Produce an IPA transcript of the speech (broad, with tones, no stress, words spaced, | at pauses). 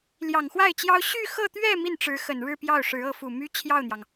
ljɑ˨˩ŋxwa˥˩ɪ̯t͡ɕjɑ˥ʊ̯ ɕy˥˧xɤ˥˧t̪ɥɛ˥˧ mi˥˩nʈ͡ʂɻ̩˧˥xə˨˩n ɻɻ̩˥˧pjɑ˥˩ʊ̯ ʂɻ̩˧˥ɤ˧˥fu˨˩ my˥ t͡ɕʰjɑ˥˩ʊ̯n̪jɑ˩ŋ